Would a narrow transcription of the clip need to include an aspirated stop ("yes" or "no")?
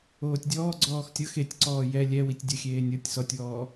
no